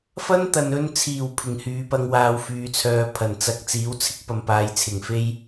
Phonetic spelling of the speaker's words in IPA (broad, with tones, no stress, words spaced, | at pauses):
fɐ˥nt̪ɐ˨nɵ˧nt͡sʰiː˨˩w pʰɪ˨˩ŋhyː˨pɐ˧ŋ waː˧wfyː˨˧t͡sʰœː˧ pʰɐ˨˩nt͡sɐ˧k̚ t͡siː˨˥wt͡sʰɪ˥k̚pɐ˨m paː˨˧jt͡sʰɪ˨˩ŋfe˥j